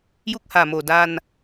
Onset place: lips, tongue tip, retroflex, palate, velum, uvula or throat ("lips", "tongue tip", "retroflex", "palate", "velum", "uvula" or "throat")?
palate